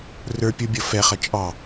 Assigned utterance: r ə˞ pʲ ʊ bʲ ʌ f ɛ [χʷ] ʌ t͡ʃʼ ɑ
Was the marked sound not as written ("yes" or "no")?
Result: yes